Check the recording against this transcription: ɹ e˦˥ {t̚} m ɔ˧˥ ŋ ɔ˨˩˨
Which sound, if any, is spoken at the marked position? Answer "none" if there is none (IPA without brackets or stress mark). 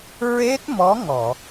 t̚